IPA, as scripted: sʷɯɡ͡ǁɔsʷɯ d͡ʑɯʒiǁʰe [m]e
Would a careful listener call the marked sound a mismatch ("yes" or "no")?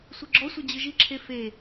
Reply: yes